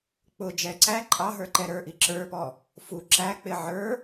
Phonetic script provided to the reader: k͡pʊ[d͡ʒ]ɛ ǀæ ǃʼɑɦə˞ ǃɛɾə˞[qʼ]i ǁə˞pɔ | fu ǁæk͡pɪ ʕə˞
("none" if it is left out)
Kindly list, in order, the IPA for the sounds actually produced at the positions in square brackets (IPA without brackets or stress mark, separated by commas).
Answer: d͡ʒ, ʔ